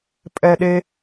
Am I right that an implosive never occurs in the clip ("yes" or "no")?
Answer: no